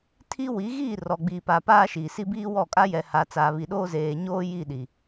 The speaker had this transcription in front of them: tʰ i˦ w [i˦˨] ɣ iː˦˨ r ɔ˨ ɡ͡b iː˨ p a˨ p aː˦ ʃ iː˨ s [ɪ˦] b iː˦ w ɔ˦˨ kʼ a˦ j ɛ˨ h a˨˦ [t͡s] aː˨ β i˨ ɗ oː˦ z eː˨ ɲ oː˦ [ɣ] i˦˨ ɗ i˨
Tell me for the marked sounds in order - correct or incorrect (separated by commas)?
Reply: incorrect, incorrect, correct, incorrect